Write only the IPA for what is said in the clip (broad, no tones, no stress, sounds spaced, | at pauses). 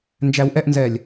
n d͡ʒ æ w ʔ ɛ ʔ n z ɛ lʲ